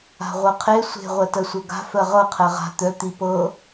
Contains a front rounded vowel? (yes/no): yes